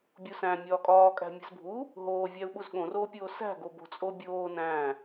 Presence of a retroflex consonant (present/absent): absent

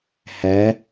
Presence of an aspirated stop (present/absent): absent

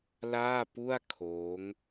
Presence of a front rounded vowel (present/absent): absent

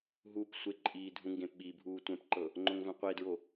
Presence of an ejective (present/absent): present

